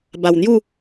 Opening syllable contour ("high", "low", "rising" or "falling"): low